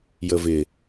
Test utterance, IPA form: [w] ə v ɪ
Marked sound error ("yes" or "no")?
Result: yes